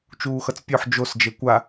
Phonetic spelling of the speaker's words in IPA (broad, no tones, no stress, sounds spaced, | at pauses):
t͡ʃ uː x ʌ t͡s pʲ o ħ d͡ʒ o s d͡ʒ e kʷ a